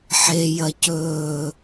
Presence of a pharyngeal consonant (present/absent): present